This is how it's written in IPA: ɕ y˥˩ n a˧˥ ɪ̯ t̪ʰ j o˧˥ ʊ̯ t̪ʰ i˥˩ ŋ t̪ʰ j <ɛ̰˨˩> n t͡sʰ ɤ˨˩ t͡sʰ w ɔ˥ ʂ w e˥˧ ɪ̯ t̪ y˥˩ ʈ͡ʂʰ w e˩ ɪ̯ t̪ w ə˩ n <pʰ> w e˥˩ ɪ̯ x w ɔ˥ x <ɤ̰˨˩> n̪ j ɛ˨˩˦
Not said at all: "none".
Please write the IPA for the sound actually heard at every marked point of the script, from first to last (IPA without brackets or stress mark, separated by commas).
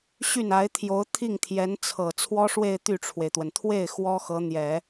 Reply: ɛ˧˥, t̪ʰ, ɤ˧˥